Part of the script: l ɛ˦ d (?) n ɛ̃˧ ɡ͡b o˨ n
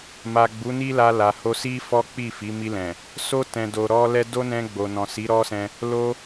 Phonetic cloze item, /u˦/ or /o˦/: o˦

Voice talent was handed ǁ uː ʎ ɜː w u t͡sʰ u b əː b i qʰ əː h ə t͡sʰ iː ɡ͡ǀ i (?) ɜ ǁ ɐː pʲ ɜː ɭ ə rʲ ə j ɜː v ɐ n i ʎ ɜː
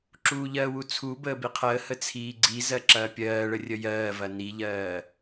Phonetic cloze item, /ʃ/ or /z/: z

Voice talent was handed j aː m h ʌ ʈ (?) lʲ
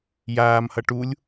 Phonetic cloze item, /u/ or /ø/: u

